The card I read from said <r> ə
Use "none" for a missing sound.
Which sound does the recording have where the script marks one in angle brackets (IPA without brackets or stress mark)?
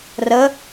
r